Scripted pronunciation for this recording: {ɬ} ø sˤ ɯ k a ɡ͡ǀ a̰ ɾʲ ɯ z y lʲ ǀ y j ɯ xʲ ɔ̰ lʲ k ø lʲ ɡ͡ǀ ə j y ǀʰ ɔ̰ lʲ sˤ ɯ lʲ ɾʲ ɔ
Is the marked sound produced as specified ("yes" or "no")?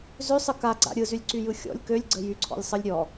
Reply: no